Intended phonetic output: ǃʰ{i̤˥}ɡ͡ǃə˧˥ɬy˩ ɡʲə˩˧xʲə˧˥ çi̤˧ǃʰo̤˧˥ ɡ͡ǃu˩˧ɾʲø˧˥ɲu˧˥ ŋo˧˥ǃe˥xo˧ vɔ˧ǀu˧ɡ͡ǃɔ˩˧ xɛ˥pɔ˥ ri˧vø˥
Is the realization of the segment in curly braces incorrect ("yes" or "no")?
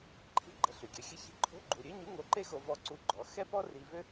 no